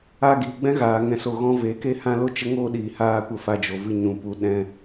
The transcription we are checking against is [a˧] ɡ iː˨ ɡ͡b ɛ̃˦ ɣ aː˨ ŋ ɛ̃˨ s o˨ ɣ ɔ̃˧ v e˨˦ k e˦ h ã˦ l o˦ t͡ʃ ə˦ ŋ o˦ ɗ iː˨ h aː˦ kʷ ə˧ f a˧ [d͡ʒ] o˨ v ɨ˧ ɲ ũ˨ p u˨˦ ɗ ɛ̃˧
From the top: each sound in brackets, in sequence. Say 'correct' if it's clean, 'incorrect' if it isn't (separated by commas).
correct, correct